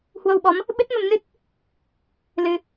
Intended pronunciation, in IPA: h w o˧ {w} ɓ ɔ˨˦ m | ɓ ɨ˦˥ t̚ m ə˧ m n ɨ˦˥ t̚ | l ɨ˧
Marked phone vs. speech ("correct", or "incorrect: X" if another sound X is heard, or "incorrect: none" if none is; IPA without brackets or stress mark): correct